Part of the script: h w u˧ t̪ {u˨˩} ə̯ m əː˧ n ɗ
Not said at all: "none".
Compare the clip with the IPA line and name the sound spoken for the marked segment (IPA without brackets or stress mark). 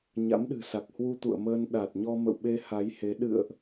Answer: ṵ˧˨